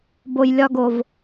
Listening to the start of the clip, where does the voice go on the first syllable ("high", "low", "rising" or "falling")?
low